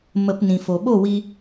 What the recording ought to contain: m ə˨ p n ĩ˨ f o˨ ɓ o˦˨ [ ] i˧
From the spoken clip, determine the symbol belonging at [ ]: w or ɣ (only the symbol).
w